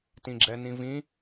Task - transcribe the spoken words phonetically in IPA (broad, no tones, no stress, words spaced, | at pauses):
tĩɡ͡ǁɛnĩvĩ